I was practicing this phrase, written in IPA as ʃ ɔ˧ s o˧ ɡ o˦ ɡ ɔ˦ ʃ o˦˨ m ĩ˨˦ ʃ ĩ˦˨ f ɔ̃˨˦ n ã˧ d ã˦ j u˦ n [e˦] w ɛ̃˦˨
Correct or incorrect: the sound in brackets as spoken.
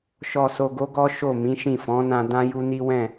incorrect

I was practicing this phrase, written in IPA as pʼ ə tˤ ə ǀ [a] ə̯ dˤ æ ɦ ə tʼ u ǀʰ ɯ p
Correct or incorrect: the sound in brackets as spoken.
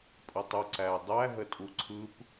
incorrect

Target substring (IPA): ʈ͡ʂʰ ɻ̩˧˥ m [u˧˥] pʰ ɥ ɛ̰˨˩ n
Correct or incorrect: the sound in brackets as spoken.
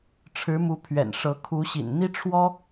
correct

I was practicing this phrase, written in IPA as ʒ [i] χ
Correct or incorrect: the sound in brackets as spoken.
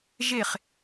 incorrect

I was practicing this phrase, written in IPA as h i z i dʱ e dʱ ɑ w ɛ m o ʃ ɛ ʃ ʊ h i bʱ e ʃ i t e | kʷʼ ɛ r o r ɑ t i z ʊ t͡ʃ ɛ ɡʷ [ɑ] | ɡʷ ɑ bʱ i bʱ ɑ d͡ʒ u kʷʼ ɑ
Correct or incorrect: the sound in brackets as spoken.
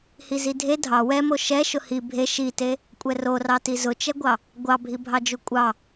correct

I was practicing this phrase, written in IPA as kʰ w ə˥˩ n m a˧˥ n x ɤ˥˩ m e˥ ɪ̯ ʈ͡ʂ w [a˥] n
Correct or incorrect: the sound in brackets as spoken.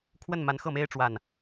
incorrect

